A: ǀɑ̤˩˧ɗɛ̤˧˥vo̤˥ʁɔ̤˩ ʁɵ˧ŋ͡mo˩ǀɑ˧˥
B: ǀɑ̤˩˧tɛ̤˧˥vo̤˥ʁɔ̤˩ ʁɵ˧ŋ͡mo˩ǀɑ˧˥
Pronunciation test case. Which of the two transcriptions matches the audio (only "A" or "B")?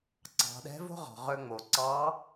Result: A